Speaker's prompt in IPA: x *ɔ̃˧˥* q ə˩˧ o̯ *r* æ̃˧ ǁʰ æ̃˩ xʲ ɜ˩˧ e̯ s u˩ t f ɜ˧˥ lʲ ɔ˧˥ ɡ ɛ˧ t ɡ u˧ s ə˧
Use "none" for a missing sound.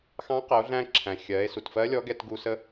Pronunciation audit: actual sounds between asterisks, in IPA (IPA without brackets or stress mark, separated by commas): ɑ̃˧˥, ɮ